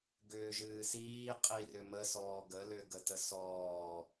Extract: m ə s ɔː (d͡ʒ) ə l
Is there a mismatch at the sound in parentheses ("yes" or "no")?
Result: yes